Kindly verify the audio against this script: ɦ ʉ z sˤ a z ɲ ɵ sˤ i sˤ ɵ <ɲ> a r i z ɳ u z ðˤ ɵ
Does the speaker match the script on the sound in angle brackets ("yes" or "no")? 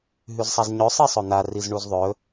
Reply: no